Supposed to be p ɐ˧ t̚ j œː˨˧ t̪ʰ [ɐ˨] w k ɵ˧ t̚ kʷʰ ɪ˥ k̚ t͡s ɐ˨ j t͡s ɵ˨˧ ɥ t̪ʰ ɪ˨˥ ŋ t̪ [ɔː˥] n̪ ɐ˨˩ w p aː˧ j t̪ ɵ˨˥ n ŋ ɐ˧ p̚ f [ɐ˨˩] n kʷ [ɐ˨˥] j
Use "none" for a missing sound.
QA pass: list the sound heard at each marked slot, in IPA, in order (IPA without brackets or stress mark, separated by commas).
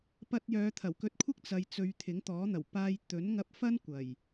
ɐ˨˩, ɔː˨˥, ɐ˥, ɐ˨˩